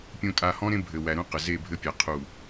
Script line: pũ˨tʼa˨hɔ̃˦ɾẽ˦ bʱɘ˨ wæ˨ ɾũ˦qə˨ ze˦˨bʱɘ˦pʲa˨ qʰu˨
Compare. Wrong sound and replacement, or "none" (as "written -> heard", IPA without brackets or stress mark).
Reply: p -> pʲ